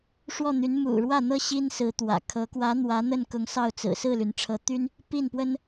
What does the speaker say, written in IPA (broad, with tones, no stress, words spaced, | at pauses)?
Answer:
ʂwɔ˥˩n̪y˧˥n mṵ˨˩ɻwä˥˩n̪ɤ˥ ɕi˥nsɹ̩˧˥t̪wä̰˨˩kʰɤ˧˥ kwä˧˥ n̪wä˧˥n̪ə˥˩nkʊ˧˥ŋ sɑ˥˩ʊ̯t͡sɹ̩˨˩ sɹ̩˥˩ly˩n ʈ͡ʂʰɤ˧˥ t̪y˥n | pi˥˩npwə˥n